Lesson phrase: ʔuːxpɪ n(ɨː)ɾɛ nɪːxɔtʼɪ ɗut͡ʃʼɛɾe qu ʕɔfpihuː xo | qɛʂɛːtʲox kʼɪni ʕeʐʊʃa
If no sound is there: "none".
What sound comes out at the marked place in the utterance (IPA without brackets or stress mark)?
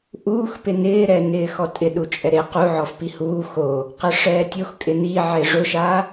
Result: ɪː